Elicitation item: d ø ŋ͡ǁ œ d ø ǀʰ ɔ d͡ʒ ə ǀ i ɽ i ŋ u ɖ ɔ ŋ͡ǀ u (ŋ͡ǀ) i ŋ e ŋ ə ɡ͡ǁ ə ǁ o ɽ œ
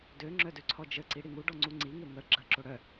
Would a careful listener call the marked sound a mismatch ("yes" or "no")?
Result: no